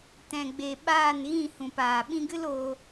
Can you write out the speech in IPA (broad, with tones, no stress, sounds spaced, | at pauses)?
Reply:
t ɛ̃˨ ɡ͡b e˨ ɓ aː˦˨ n ɣ ĩ˦˨ h ũ˨ p aː˨ ɓ ĩ˧ ɡ ɨ˦ l oː˧